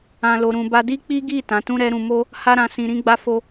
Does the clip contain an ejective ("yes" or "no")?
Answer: no